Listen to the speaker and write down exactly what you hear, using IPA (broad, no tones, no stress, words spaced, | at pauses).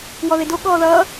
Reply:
wɔðedo ɠɔːðʌː